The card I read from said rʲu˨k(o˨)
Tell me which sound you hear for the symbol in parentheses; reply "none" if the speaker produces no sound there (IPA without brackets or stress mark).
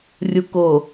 o˨